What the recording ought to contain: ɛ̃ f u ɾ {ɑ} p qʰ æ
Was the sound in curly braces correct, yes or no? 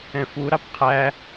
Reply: yes